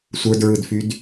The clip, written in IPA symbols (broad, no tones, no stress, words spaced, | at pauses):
sʷə˞dɹɯdfyd